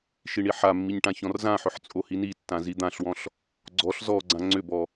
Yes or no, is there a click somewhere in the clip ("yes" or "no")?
yes